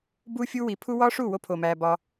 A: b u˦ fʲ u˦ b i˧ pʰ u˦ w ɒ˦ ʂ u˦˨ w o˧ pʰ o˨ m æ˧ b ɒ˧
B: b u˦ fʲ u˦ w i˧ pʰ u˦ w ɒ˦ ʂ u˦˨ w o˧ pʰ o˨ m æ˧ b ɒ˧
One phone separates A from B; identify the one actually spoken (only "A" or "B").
B